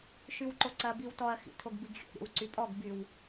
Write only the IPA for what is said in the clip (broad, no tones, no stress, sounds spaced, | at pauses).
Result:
ʃ y w ǃ o ǀ ɐ b i w t ɔ ɐ̯ x ḭ tʰ o ɡ b i ɡ xʲ o̰ ɾʲ o̰ w ǀ y pʼ ɔ ɡ b y w